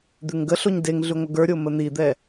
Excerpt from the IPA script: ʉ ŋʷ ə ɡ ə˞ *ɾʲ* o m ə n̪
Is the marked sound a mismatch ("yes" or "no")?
no